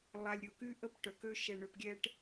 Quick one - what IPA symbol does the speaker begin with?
lˠ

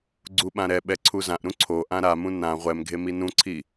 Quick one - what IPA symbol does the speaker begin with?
ɡ͡ǀ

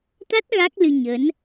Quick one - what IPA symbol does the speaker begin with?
t̪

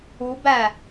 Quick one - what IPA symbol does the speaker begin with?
u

